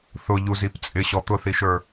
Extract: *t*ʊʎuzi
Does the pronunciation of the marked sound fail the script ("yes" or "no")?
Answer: yes